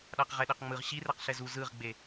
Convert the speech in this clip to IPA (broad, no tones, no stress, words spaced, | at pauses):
ɗaqʁɛɗeqŋ͡mɯʁ ɕirɛq ɬɛzu zɯʁɡ͡be